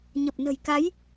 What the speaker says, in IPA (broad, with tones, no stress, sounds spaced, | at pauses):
ɲ ə˨˩ p̚ n ə̤˨˩ j k a˨˦ j